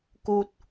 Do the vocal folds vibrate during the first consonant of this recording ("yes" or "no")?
no